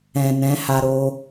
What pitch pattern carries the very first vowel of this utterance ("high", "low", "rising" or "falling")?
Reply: low